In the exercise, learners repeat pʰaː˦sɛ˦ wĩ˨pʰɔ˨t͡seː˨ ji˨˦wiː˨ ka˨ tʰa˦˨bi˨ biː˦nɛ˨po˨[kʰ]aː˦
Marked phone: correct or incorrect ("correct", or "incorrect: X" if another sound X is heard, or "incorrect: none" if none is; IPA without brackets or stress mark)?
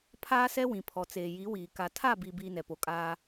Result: incorrect: kʼ